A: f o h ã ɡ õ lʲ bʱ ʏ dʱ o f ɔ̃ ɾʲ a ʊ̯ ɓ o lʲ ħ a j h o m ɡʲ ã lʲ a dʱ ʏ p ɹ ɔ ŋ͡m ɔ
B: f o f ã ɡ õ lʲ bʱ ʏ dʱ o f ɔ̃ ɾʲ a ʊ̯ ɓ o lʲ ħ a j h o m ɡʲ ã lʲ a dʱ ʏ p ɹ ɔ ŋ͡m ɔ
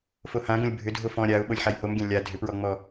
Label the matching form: A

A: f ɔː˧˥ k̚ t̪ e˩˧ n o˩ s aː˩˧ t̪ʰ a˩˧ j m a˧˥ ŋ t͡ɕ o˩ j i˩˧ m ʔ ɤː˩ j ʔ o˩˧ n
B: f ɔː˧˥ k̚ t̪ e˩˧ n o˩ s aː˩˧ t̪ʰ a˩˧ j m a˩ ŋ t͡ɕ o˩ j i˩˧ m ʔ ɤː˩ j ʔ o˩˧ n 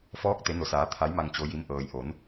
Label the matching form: B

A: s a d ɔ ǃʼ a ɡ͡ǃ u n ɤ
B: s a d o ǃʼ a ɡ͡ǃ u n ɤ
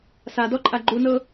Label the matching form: A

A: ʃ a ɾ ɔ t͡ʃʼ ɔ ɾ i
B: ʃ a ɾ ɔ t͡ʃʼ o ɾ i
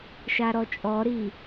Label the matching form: A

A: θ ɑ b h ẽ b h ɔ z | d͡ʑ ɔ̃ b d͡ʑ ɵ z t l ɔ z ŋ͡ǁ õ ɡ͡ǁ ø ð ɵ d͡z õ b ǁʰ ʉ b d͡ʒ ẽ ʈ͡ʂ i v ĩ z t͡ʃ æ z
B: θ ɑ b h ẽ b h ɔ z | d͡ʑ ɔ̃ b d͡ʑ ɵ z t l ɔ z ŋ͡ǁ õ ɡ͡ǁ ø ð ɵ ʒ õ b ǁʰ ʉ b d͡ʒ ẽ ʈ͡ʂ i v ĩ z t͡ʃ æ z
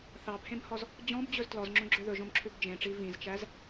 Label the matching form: B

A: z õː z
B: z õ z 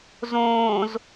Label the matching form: A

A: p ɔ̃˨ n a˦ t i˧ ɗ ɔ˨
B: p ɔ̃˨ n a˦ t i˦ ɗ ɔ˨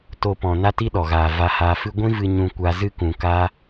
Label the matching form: B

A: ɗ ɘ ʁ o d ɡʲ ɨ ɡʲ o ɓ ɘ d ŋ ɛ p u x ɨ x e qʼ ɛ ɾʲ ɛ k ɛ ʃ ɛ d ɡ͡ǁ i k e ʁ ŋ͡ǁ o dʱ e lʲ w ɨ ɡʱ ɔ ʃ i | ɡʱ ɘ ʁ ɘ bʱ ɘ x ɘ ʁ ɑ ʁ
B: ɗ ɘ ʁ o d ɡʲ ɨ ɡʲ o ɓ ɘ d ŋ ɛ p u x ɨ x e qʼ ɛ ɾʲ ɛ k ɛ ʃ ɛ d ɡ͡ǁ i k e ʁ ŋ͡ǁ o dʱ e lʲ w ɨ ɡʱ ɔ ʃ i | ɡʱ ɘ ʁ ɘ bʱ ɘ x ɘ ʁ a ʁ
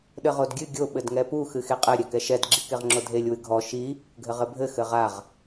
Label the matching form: B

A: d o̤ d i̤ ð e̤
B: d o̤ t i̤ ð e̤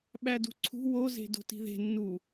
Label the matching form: B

